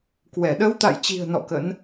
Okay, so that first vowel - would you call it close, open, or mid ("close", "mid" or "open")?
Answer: mid